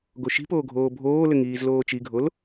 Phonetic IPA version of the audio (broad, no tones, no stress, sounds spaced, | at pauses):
ɡ o ʃ i̤ p oː ɡʱ oː bʱ oː l ɘ ŋ iː z l oː t͡ʃ i ɡʱ o l